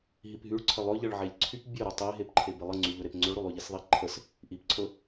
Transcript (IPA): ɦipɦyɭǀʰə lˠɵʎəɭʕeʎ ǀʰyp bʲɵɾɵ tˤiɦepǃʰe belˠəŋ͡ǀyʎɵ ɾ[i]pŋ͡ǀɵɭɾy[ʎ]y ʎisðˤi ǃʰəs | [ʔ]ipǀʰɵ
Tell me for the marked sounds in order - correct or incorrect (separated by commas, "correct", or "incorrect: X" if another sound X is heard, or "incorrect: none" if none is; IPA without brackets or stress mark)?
incorrect: e, incorrect: lˠ, correct